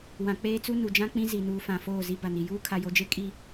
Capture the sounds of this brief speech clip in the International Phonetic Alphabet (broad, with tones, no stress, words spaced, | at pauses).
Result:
wã˨ k͡peː˦t͡su˦ nu˨d͡ʒã˦ k͡pĩ˦ zi˨nuː˨ fã˨ foː˦˨zi˦ ba˨ni˨ juː˦kʰa˨jo˨d͡ʒe˦ kʼi˦